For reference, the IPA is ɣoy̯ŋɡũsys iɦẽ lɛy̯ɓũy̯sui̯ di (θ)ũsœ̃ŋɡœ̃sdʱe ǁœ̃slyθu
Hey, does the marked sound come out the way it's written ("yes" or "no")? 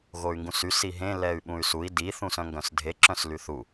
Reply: yes